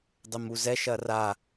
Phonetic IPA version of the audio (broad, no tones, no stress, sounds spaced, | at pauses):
dˤ ɘ m u z ɛ ʃ ɐ r a